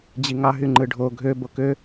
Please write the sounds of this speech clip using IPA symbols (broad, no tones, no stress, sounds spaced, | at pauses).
d͡ʑ i ŋ ɑ ɦ y ŋ͡ǃ ɯ ɖʱ o ɡʱ ø b o k ø